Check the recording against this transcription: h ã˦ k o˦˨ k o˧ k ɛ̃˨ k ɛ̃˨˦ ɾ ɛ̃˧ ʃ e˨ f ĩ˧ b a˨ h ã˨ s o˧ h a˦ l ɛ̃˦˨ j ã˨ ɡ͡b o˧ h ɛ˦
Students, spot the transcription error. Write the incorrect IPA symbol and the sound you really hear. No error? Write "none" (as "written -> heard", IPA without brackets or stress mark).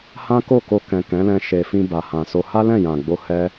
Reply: ɾ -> l